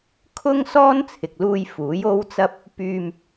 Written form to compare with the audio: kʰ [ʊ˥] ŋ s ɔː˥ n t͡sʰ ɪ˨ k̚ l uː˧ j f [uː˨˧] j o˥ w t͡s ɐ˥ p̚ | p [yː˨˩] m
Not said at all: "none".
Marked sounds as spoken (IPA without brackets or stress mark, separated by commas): ʊ˥, uː˨˥, yː˧